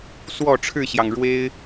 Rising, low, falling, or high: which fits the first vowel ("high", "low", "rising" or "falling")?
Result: falling